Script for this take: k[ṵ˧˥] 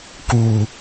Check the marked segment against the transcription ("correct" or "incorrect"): incorrect